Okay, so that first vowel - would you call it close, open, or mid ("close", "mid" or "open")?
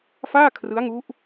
open